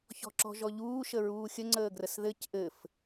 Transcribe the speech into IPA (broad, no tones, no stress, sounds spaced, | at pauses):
ç ɔ̤ ǁ ɔ̤ ʒ ɔ ʎ uː ʃ ə ɹ uː xʲ ə ŋ͡ǀ əː ɡ r ə s ð ɘ c ʔ ɘ f